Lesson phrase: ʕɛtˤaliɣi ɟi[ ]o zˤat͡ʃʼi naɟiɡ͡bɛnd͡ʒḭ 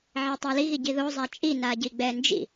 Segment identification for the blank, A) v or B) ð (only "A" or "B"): B